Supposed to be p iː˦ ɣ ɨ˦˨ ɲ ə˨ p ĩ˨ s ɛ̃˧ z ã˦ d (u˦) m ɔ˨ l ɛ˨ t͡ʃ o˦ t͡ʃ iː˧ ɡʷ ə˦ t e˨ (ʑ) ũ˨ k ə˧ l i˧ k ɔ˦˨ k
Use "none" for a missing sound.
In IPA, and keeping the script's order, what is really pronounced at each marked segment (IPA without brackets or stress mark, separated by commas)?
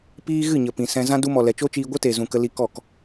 u˦, z